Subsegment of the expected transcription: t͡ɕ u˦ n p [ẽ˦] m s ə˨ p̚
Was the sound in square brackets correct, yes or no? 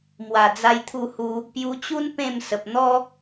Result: no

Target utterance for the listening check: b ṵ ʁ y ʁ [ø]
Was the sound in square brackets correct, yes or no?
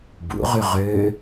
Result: yes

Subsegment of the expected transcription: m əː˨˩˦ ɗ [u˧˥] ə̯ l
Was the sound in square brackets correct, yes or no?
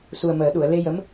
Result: no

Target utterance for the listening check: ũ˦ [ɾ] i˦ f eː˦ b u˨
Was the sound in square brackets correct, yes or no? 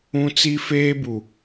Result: no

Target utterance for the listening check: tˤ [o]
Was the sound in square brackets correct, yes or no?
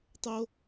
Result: yes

